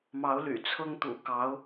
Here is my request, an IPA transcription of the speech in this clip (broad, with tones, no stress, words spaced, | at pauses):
mɑ˧˥ʊ̯ly̰˨˩t͡sʰɤ˥ŋ t̪ṵ˨˩kɑ˧˥ʊ̯